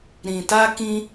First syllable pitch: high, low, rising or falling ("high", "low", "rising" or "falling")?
low